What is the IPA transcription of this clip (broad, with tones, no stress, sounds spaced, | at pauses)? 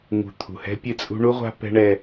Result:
ŋ ṳ˨ t̪ʰ ṳ˨ h ɛ̤˦ pʲ ɨ˦˨ t͡sʼ ṳ˦ ɳ u˦ ʁʷ a̤˦ p ɛ̤˦ ɳ ɛ˦